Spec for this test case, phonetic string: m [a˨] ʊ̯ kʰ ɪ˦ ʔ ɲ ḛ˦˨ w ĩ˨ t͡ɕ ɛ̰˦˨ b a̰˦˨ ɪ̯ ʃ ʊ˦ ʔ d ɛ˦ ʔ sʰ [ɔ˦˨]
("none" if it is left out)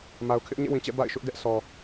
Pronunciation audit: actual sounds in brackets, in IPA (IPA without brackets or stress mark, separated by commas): a˨, ɔ˨